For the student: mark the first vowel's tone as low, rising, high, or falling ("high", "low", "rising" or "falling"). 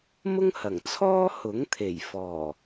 high